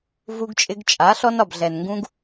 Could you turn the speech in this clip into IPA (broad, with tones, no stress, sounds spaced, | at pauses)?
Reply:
v u˧ ɡ t͡ʃʼ ɪ˧ ɡ t͡ʃʼ a˨˦ ɬ ɔ˧ n ɒ˨ b ɮ ɛ˨ n ŋ ɡ ũ˧ ɡ